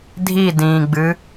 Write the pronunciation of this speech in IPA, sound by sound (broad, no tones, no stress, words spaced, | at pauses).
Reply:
dʱidĩːɡ͡bɨ